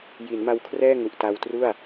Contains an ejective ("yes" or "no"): no